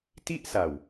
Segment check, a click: absent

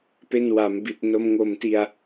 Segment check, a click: absent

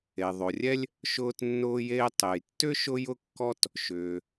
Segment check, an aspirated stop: absent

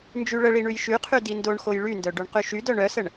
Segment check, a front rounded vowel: present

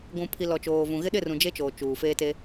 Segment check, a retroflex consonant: absent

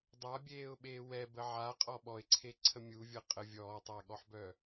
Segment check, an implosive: present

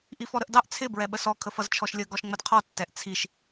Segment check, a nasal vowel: absent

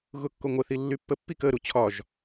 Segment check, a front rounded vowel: present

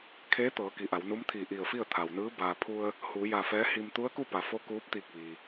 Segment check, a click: absent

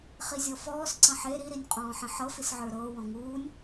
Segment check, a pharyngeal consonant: present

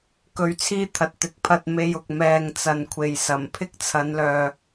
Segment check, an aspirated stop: present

